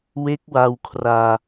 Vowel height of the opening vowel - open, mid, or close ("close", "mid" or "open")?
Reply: mid